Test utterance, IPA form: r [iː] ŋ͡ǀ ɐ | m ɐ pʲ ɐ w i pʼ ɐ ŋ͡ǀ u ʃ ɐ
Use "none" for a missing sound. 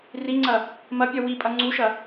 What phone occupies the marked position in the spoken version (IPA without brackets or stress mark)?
i